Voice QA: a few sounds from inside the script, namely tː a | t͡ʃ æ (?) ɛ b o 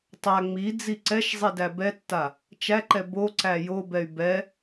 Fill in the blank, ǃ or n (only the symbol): ǃ